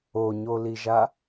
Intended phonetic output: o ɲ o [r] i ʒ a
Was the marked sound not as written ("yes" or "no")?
yes